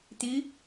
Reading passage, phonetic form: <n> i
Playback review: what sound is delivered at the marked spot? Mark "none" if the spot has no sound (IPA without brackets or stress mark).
t̪